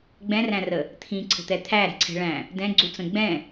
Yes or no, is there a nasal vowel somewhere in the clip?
yes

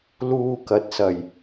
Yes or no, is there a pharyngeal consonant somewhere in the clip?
no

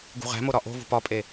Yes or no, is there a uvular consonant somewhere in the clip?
yes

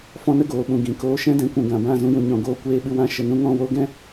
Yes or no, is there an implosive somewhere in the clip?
yes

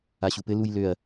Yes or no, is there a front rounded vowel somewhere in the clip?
yes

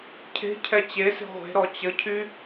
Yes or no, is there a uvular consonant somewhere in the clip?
yes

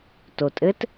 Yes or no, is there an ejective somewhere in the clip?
yes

